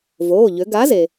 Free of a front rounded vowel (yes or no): no